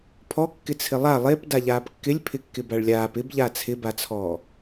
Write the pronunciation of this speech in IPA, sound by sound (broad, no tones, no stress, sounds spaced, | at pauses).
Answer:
pʰ ɔ kː ɪ t͡sʰ ɪ lˠ a lˠ e p d a ʎ aː p kː ɪ lʲ pʰ ɪ kː ɪ b a ɭ lʲ aː p ɪ b ʎ a t͡sʰ ɪ b a t͡sʰ ɔː